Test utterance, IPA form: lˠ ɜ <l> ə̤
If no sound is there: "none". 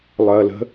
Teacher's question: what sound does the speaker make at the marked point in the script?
l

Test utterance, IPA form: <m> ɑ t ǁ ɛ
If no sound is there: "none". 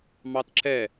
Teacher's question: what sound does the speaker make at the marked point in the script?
m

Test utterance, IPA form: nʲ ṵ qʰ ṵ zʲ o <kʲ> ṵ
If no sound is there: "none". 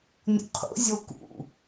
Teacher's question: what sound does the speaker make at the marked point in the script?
k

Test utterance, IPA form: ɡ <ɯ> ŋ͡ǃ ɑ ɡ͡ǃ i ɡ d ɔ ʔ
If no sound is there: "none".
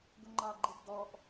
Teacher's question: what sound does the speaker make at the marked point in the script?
ʊ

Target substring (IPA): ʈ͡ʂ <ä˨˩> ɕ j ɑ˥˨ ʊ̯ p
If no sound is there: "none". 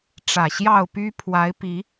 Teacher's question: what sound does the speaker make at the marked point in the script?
ä˨˩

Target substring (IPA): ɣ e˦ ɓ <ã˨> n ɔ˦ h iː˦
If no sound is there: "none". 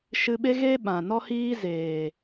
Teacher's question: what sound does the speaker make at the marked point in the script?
ã˨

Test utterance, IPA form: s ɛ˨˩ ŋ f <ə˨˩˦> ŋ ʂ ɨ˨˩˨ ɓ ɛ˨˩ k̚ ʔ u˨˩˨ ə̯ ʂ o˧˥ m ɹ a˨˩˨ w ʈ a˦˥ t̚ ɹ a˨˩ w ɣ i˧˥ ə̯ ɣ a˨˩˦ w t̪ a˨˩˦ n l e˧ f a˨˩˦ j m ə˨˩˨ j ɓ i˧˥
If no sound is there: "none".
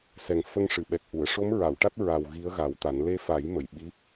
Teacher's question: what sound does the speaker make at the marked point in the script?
ə˧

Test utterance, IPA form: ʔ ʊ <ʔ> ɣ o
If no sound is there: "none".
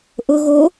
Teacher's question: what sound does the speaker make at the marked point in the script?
none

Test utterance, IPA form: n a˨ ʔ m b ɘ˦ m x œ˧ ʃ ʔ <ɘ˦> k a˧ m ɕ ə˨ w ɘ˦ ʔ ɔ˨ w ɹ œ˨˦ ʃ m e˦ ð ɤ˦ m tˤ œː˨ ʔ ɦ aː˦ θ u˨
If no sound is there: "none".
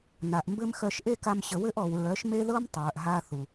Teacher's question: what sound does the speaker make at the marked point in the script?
e˦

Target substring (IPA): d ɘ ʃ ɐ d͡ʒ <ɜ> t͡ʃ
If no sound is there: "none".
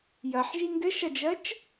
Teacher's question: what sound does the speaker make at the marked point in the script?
ɜ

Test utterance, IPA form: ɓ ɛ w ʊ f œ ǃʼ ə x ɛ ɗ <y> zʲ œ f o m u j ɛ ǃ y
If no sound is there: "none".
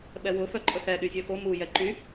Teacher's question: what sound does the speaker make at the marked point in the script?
y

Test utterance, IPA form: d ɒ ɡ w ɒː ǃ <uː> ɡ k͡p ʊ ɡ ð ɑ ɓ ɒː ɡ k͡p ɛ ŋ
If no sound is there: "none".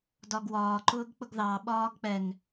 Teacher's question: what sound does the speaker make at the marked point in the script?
ʊː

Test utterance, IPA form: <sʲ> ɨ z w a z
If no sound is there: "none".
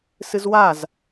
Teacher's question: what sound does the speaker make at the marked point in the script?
s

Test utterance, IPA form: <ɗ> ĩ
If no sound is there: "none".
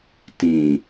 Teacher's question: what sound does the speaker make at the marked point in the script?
t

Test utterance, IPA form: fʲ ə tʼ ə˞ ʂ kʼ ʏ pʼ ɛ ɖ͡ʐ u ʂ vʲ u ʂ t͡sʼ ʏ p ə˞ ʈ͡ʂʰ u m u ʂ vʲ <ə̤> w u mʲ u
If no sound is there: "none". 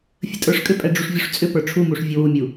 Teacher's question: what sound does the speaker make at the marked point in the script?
ə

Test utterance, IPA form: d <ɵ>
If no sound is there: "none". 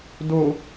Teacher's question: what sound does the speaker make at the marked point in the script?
o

